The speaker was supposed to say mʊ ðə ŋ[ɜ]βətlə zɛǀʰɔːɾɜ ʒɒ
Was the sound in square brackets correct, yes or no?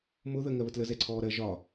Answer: yes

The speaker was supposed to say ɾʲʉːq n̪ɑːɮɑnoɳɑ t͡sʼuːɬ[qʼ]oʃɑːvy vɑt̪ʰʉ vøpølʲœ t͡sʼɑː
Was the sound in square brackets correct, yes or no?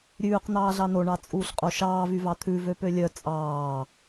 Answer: yes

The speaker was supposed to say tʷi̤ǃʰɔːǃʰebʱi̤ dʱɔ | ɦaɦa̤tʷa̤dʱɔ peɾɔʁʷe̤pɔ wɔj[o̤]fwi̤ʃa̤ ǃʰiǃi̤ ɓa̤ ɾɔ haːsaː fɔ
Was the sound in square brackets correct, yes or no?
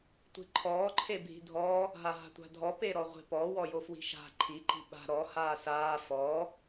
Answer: no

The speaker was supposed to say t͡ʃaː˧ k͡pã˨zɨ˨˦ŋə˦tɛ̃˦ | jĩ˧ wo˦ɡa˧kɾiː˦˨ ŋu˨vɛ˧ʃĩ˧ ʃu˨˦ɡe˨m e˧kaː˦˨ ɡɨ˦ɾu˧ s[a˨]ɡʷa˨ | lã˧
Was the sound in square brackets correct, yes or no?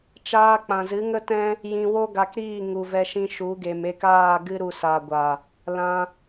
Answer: yes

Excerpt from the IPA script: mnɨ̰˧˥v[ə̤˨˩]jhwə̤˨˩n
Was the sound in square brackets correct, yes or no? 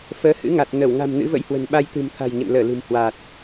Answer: no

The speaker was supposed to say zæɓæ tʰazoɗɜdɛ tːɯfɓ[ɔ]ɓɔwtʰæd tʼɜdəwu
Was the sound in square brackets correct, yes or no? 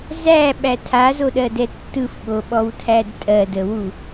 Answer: no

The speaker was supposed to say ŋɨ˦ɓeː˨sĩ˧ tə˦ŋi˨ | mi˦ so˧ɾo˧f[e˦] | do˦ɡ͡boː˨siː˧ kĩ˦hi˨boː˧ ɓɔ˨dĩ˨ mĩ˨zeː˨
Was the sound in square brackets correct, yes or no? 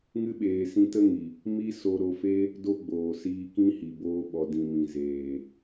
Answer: yes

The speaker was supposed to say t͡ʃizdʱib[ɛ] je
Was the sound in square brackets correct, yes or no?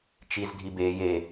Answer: no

